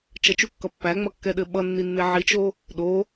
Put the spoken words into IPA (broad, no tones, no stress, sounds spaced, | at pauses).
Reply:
t͡ʃ ʌ t͡ʃ u kː ʌ pː æ ŋ͡m ʌ kː ɛ ɗ ɘ ɓ ʌ nː i nː e ʕ i t͡ʃ o | ɗ o